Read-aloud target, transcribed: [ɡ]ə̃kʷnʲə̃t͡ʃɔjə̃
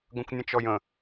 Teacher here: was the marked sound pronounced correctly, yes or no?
yes